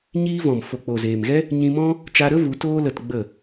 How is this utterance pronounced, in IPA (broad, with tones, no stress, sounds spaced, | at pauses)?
ɲ iː˦ v ɔ̃˨ m f o˨ k͡p o˨ z eː˨ m ɣ ɛ˦ | ɲ ĩ˧ m ɔ̃˦ | t͡ʃ a˧ ɾ ə˦ v u˨˦ t oː˦ l ə˧ t ɡ͡b ə˦˨